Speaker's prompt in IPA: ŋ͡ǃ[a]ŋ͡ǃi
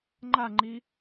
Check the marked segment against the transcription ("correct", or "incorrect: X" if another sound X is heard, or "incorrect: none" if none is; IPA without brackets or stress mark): correct